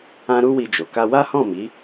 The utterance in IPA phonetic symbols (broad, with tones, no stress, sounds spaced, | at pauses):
ã˦ ɾ u˦ w i˧ d͡ʒ o˨ k a˧ w a˦ h ɔ̃˦˨ m i˨˦